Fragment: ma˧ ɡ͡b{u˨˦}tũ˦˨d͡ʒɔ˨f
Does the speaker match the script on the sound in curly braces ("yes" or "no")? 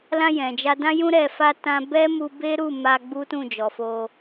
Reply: no